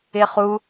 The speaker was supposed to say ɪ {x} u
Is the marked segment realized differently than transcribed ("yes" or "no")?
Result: yes